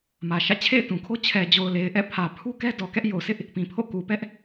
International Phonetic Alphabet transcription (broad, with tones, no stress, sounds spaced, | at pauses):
m ä˨ ʃ ä̰˦˨ t͡ɕʰ ḛ˦˨ ɪ̯ t ũ˨ kʰ o˦ t͡ɕʰ ɛ˨ d͡ʑ o˨ ʊ̯ l e˨ ɪ̯ ʔ ɛ̰˦˨ pʰ ä˨ pʰ u˦ k ɛ˦ d ɔ˨ k ɛ˦ ʔ j o˨ sʰ ɪ˦ ʔ | p ĩ˨ pʰ o̰˦˨ k u˨ p ɛ˦ ʔ